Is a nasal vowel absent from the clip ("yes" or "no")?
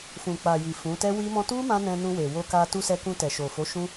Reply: no